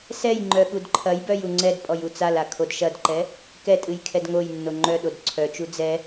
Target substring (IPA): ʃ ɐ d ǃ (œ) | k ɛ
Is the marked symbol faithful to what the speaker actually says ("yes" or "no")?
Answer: no